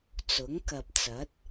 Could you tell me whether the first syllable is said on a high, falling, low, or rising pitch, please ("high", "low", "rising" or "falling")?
rising